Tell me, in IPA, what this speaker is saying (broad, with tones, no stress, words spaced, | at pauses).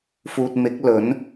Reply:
fuː˨t̚ mɪ˨˥k̚lɵ˨˥n